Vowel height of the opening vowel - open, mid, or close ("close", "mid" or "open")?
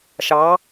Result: open